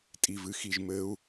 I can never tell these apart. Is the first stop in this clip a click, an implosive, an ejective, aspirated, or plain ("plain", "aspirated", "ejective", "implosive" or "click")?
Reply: ejective